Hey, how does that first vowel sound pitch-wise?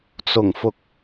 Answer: low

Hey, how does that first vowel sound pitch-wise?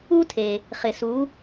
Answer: high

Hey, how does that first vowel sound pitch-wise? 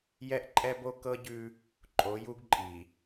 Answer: high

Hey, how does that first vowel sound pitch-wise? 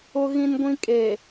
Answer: high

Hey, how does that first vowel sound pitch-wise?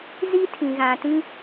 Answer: high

